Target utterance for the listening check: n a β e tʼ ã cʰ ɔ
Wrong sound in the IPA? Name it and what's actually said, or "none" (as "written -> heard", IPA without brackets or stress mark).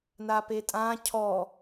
β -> p